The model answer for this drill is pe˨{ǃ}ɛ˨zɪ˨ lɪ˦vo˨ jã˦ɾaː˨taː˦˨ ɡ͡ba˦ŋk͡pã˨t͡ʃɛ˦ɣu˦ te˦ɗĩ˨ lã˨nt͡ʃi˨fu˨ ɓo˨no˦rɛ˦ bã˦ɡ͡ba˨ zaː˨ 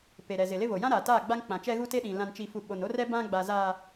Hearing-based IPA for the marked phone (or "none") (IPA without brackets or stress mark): ɾ